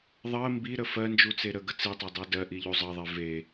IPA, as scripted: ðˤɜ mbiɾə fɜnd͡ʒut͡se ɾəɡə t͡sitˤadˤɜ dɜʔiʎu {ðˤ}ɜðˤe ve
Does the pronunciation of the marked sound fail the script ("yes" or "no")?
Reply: yes